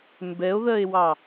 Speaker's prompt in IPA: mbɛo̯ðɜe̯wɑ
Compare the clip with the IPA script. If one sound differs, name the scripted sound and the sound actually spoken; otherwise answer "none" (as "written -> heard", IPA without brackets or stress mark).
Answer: none